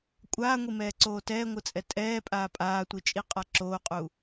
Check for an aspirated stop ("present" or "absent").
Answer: absent